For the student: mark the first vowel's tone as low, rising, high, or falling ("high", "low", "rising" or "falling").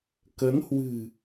rising